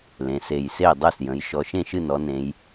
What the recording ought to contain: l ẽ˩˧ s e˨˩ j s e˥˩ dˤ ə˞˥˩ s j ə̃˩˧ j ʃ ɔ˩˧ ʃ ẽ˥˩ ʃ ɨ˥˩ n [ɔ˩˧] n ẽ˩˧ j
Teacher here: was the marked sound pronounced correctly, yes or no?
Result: yes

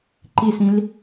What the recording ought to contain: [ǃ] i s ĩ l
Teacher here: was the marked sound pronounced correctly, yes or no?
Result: yes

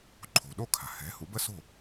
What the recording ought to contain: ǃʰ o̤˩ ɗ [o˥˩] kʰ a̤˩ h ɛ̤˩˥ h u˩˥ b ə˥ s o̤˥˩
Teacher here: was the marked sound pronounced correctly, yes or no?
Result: yes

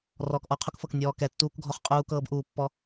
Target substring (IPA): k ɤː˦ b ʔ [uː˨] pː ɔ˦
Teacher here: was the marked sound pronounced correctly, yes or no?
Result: yes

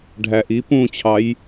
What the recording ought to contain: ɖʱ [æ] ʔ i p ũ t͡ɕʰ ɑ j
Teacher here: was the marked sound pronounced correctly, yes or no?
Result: yes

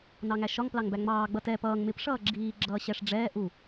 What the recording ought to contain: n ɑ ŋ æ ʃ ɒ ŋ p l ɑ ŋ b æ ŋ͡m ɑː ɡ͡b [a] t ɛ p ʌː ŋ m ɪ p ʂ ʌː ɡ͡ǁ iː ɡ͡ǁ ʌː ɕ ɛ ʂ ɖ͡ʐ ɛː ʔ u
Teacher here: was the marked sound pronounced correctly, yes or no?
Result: no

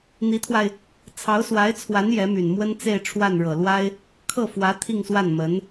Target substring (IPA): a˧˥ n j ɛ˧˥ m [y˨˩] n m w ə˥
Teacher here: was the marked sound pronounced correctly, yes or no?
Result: yes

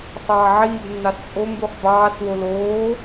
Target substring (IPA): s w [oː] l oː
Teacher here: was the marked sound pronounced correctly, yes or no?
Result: no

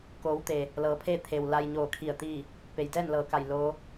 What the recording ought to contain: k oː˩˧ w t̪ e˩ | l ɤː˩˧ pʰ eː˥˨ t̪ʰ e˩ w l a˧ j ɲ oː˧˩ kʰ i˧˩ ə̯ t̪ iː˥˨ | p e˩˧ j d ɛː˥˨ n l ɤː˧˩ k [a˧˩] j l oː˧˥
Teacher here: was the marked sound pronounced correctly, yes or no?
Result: yes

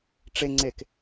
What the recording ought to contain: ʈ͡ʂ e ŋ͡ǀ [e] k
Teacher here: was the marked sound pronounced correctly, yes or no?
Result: yes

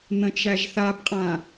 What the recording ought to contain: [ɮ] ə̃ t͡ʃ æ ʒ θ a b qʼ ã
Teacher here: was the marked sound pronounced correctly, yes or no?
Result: no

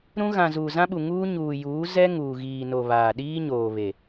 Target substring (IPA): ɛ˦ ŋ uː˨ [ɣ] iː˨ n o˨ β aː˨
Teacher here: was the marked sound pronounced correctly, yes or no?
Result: yes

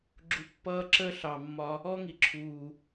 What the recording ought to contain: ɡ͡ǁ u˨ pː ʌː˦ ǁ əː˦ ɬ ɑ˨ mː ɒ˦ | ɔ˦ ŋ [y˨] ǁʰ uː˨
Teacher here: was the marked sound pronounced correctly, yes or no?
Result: no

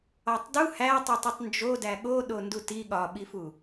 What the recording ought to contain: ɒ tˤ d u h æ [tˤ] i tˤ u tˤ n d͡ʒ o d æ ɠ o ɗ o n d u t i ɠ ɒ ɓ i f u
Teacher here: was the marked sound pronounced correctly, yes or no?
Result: yes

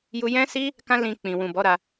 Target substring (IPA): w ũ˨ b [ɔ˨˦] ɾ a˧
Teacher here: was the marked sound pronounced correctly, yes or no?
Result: yes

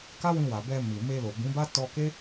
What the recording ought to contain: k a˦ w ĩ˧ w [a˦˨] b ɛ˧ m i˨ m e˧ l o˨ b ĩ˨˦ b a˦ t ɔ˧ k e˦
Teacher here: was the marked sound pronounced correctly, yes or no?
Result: no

